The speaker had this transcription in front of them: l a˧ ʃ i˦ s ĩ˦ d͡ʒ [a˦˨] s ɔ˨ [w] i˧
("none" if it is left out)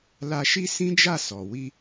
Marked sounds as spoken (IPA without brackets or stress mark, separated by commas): a˦˨, w